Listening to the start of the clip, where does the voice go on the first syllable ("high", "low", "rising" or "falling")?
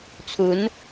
rising